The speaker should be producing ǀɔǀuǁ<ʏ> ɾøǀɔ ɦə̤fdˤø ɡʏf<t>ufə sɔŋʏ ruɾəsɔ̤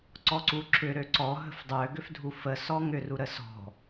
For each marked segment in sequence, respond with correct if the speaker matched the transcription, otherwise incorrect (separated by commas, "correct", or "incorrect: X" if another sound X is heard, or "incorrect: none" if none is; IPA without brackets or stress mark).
correct, incorrect: dʱ